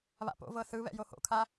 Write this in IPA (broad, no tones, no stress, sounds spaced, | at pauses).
β a̰ p o̰ v ɤ θ ɯ β ɛ̰ j o h o̰ kʰ a